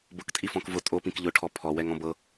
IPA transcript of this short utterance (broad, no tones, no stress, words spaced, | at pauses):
bʊktʼi fɔ̃kvʊ tʼopĩk ʎʊʈʰɔ pʰɔwɛŋ ɔ̃bɤ